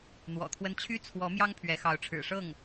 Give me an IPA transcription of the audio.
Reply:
n̪wɔ̰˨˩t̪ʰwə˥n t͡ɕʰy˥t͡sʰwɔ˧˥mjɑ˥ŋ pʰɥɛ˧˥xɑ˧˥ʊ̯ʈ͡ʂʰɻ̩˨˩ ʂɤ˥˩ŋ

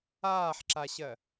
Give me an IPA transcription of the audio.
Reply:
aːħǁaɕɜ

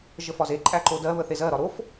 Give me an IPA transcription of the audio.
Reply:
ʒəfɒze ǃʼæǃodɜ βəθezɜ ɾɒɾof

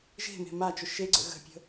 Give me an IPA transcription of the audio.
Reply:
ʒe̤me̤ mat͡ʃʊ ʃeɡ͡ǀə̰ ɣə̤pʲə̤

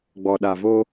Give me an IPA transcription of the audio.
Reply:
ɡ͡bɔ˨ɗa˨vo˦

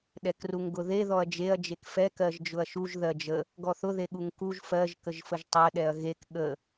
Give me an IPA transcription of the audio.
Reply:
ɗɛkruŋɡʊðe ðɔɐ̯d͡ʒeɐ̯ d͡ʒekfɛ kɜʒd͡ʒʊɐ̯ʃuʒ ðɜd͡ʒə | ɡɔθʊ ðeɠuŋkuʒ fɜʒ kəʒfəʒtˤɜ ɗɛɐ̯ɣek ɠə

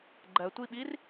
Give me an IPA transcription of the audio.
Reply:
ɡ͡ǃɜtʷiɓir

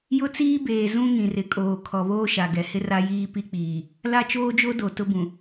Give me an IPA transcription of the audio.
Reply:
jʊ˦t͡siː˦beː˨ zũ˦ ŋĩ˨rɪ˨kʼoː˨ kʰɔ˨βoː˦ ʃa˨ɡɛ˨hɪ˦ ra˦jiː˦ pi˦k͡piː˨ | la˦t͡ʃoː˦d͡ʒo˦do˨ tʊ˦bũ˨

